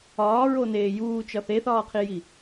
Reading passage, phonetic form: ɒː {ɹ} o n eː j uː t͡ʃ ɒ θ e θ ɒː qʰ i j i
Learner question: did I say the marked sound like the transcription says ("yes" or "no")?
yes